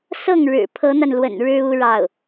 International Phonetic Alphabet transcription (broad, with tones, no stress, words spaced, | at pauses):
sɤ˥˩ŋɻɻ̩˨˩ pʰɤ˧˥n̪a˧nlwə̰˨˩n ɻɻ̩˥u˥ɻɑ˥˩ʊ̯